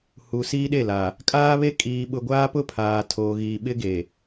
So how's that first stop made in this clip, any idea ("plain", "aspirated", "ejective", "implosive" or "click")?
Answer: implosive